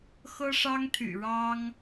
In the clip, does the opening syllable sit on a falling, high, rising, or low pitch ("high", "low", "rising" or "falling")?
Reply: high